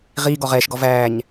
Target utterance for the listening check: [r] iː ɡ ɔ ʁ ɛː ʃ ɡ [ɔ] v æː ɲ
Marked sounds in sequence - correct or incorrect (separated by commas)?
incorrect, correct